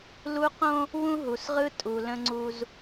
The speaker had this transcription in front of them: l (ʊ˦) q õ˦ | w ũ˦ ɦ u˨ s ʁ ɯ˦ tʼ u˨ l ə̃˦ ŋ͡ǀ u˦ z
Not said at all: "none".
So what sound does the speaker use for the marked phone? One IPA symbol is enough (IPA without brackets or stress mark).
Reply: u˦